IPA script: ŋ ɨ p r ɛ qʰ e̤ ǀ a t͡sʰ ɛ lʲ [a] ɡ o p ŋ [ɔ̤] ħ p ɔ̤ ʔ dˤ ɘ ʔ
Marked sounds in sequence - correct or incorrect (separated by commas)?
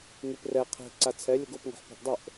incorrect, correct